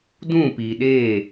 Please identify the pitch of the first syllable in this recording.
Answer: falling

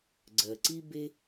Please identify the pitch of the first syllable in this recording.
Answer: low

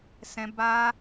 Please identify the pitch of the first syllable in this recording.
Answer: high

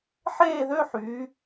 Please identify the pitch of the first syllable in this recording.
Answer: falling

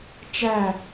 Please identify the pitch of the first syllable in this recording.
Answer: falling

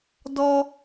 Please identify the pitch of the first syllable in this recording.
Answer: high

